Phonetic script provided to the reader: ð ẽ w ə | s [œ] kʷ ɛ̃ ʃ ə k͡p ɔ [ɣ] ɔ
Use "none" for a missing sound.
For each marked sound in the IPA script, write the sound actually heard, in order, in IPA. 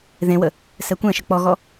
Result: ɛ, ɣ

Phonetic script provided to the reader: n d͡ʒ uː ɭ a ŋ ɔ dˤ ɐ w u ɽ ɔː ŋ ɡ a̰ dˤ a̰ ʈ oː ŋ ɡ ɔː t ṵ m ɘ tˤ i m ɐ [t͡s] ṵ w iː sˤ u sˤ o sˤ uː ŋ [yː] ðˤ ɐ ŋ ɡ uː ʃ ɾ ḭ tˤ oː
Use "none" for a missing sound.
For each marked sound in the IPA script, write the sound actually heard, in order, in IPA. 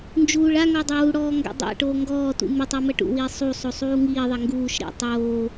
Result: ʈ, iː

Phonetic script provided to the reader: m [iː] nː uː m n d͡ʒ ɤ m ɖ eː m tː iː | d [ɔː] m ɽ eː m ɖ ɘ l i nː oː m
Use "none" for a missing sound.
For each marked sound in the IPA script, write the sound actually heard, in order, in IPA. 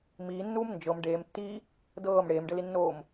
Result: iː, ɤː

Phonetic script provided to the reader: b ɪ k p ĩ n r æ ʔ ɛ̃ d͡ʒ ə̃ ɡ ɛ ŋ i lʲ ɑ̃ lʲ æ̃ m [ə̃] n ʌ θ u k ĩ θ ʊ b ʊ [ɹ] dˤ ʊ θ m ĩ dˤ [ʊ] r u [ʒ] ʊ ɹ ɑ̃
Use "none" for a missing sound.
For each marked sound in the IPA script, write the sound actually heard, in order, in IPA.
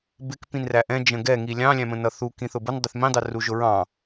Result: ə̃, n, ʊ, ʒ

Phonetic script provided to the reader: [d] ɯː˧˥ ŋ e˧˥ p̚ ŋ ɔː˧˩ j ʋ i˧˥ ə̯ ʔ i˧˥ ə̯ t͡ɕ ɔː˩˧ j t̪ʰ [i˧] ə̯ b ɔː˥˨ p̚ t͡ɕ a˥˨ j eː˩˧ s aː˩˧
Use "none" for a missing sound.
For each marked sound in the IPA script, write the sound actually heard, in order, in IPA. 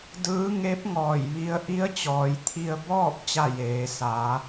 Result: d, i˧

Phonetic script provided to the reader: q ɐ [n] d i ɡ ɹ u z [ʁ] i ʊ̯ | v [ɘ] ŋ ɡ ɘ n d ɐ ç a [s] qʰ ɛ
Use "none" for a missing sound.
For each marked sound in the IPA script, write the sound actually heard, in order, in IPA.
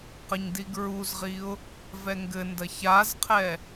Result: ɲ, ʁ, ɛ, z

